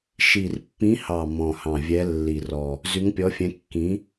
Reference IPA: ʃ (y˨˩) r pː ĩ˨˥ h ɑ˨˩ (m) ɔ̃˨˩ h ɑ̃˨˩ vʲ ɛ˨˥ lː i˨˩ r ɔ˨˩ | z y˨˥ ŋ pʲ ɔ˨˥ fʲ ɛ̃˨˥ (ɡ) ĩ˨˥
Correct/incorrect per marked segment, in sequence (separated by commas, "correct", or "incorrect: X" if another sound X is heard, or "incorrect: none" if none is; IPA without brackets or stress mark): incorrect: i˨˩, correct, incorrect: kː